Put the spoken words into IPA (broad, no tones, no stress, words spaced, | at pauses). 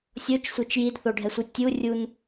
sʲot͡ʃsʷet͡ʃ jidθoɖʱɛsʷɨ tʲurʲun